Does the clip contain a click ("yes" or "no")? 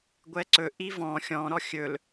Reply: yes